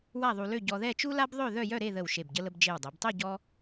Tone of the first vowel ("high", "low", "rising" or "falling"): falling